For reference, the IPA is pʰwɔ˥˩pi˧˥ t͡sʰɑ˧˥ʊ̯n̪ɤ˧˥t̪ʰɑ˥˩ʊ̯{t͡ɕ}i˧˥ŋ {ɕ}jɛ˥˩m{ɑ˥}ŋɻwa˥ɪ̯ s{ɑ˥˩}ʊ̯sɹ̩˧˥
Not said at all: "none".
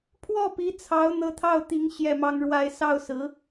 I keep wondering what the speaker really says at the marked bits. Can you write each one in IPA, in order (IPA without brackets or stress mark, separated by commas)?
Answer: t̪, ɕ, ɑ˥, ɑ˥˩